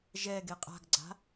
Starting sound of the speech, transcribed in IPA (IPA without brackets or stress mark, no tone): ʒ